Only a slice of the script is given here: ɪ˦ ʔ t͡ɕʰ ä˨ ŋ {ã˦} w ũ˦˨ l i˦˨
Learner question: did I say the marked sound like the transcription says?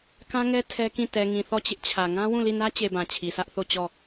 yes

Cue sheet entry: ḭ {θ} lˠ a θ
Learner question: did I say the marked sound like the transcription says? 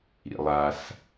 no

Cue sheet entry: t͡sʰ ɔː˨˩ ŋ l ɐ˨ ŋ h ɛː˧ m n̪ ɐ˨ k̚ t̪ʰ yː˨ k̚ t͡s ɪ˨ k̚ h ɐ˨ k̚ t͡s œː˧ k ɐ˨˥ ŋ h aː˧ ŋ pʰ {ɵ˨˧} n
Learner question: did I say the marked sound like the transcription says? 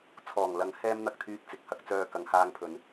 yes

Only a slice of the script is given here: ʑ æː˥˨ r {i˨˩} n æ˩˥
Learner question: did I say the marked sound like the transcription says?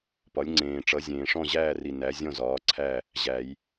yes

